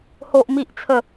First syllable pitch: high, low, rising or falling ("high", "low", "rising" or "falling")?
high